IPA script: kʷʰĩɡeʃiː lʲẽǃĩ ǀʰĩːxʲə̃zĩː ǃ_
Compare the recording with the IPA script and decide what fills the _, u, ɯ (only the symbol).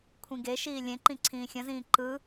ɯ